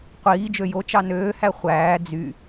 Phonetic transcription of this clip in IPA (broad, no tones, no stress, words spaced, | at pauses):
qʷiː d͡ʒøjo t͡ʃɑnøː hæχʷæː d͡zy